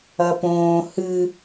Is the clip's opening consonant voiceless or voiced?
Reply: voiceless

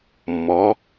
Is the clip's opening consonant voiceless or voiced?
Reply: voiced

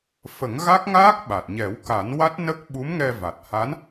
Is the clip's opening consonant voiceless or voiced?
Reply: voiceless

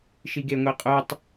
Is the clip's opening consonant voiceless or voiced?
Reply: voiceless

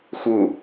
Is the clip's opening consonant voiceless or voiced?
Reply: voiceless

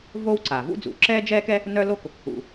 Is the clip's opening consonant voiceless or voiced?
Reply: voiced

